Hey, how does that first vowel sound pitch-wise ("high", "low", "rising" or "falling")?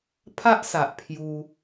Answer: high